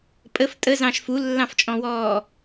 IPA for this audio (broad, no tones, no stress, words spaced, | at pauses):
pʼəf tʼəzɑ̃ʃ fulːɑ̃ft͡ʃʼɔ̃wɔː